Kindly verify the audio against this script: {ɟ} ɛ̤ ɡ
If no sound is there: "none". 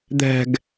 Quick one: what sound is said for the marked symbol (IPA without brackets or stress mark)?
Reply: d̪